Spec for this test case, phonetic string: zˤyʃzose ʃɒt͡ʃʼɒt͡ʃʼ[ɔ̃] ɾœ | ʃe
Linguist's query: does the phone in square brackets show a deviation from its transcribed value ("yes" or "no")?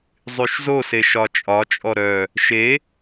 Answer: yes